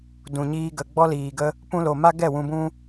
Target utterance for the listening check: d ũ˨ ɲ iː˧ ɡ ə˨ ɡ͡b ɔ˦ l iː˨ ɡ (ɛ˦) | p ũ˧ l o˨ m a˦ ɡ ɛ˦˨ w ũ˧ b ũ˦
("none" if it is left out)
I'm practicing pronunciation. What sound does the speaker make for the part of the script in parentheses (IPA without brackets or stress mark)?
ə˦